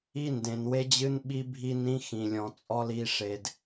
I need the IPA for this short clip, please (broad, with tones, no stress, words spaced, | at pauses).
i˦ndẽ˨nwe˦d͡ʑɨ˦n ɓi˦bʱi˦ nĩ˦xĩ˨lʲɔ̃˨ t͡sʼɔ˦li˨˦ʂe˨d